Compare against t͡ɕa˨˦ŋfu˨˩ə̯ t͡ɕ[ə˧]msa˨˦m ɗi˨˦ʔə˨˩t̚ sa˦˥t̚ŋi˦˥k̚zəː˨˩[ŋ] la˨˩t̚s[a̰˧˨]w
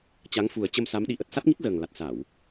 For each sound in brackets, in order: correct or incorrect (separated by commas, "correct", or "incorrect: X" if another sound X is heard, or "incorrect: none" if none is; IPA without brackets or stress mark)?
correct, correct, incorrect: a˧˩˨